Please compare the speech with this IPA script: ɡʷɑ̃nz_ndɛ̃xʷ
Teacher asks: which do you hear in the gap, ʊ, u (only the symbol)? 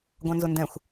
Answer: ʊ